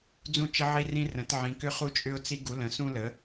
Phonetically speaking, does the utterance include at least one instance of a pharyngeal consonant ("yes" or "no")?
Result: yes